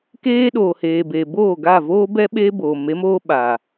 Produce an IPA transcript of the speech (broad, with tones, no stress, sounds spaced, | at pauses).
k eː˦ ɗ oː˨ h eː˨ b e˨ b oː˦˨ ɡ a˦˨ v oː˦ b ɛ˦ ɓ e˦ b oː˨ m e˨˦ m oː˦ ɓ a˨